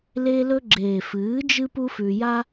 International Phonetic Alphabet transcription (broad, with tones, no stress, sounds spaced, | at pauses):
l e˧ l ɵ˧ ɡ͡ǁ eː˨ f ɨː˨˦ d͡ʒ ɨ˦ p u˦ f ʉ˧ j a˦